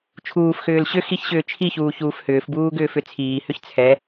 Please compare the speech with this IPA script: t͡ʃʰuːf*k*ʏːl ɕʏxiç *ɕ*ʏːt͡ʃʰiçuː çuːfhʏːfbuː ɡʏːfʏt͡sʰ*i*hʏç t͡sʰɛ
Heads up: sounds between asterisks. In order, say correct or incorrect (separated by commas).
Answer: incorrect, correct, incorrect